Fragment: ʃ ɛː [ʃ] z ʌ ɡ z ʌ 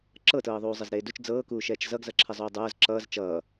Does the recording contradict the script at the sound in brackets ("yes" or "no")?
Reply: yes